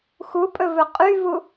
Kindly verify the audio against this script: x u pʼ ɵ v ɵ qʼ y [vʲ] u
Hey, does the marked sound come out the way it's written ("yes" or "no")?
no